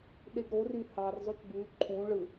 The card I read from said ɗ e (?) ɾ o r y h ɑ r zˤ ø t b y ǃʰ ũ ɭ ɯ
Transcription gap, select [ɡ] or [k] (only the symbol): ɡ